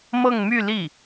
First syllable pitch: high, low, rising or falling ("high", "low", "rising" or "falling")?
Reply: falling